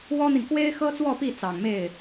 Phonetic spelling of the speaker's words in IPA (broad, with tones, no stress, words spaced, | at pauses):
wɔ˥n̪i˨n kwe˥ɪ̯xɤ˥t͡swɔ˥˧pi˥˩ t͡sɑ˨˩ŋme˥˩ɪ̯